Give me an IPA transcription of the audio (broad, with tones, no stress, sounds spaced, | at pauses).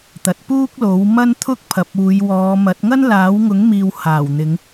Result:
t̪ ɐ˨ t̚ p uː˥ k̚ l o˨˥ w m ɐ˥ n t̪ʰ ʊ˥ k̚ pʰ ɐ˨ p̚ uː˨˧ j w ɔː˨˧ m ɐ˨˥ t̚ ŋ ɐ˥ n l aː˨˥ w ŋ ʊ˨˥ ŋ m iː˨ w h aː˨˩ w n̪ ɪ˨˧ ŋ